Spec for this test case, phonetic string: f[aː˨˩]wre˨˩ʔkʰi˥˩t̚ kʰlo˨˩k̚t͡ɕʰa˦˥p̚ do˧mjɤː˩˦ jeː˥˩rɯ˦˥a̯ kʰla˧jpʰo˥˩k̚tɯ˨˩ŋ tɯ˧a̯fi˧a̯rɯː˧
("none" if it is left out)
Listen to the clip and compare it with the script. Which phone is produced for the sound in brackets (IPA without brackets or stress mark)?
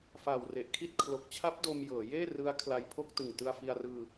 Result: aː˨˩